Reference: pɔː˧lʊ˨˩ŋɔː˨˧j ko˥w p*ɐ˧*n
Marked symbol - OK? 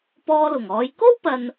yes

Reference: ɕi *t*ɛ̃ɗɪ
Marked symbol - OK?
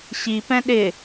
no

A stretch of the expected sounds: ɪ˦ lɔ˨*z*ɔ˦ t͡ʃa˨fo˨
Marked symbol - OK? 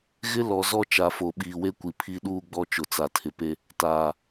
yes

